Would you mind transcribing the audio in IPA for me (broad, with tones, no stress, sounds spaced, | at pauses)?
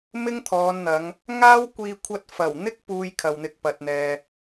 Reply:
m ɪ˥ ŋ t̪ʰ ɔː˨˧ n n̪ ɐ˨˧ ŋ | ŋ aː˥ w kʷ iː˧ kʷʰ ɐ˧ t̚ f ɐ˨˩ w n̪ ɪ˥ k̚ p uː˧ j kʰ ɐ˨ w n̪ ɪ˧ k̚ p ɐ˨ t̚ n̪ ɛː˨